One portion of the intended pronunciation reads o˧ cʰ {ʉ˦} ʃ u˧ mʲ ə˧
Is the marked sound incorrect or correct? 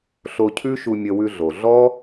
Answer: correct